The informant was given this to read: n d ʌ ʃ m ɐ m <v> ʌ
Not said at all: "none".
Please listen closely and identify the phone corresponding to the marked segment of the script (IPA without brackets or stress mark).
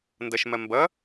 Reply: b